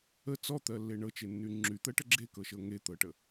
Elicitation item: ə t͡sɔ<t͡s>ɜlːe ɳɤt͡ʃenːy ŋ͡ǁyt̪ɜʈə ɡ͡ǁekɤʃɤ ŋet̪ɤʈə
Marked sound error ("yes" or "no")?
yes